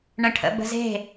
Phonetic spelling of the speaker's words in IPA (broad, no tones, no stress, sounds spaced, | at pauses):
ɳ ə̃ ʈʰ ə̰ b ə̤ z e̤